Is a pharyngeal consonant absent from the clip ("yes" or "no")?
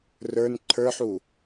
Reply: no